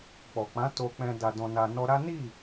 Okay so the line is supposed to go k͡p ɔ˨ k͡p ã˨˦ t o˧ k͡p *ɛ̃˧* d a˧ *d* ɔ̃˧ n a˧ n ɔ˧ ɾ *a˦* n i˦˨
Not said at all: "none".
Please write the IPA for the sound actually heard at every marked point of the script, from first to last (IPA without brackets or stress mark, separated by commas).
ɛ̃˧, d, a˦